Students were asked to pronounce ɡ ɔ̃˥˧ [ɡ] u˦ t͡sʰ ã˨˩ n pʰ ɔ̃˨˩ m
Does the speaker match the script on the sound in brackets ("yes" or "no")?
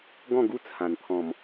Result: yes